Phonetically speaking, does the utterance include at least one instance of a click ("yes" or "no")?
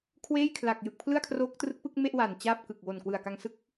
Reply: no